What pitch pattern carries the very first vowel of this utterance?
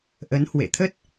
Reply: rising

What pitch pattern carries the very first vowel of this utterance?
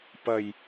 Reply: low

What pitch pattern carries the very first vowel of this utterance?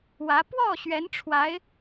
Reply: rising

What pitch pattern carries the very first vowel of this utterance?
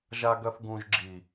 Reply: low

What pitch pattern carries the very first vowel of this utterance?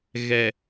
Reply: low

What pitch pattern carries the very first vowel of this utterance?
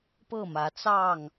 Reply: falling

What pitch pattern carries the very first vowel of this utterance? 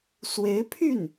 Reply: rising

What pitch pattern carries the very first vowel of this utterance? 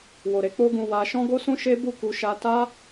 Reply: low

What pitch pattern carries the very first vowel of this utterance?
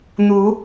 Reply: rising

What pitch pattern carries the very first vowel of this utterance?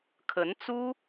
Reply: rising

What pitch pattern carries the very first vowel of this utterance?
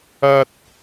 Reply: high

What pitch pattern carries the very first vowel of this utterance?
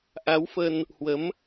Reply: rising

